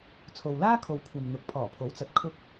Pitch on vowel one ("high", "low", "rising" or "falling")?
low